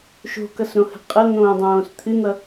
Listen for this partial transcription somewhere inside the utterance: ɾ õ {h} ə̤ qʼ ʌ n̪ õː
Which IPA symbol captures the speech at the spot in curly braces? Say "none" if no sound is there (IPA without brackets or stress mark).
h